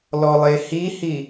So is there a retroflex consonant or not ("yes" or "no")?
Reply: no